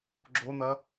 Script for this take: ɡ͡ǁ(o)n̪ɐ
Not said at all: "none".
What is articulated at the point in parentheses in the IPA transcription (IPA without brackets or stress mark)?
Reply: o